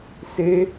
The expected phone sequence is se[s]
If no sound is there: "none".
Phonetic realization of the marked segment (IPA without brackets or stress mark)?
none